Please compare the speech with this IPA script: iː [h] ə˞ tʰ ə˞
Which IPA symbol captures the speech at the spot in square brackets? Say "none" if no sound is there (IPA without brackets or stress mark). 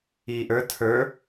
ʔ